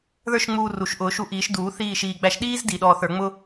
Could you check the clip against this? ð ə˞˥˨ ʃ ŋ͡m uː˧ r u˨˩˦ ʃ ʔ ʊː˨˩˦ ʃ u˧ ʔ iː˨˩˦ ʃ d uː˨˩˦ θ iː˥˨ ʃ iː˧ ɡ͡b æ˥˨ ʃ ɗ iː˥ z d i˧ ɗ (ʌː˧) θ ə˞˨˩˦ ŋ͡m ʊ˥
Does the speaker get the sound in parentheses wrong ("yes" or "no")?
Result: yes